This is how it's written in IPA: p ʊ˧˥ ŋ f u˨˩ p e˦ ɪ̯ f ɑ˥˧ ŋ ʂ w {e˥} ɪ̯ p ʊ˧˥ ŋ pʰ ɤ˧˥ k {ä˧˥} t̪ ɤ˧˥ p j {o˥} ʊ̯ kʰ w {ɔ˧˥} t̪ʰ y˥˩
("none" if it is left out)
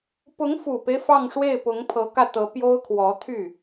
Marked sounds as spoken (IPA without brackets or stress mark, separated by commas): e˥˩, ä˥˩, o˥, ɔ˧˥